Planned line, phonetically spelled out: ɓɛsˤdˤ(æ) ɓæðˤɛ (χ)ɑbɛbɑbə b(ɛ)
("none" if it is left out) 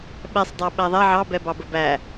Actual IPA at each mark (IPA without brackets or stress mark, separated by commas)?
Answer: æ, ʕ, æ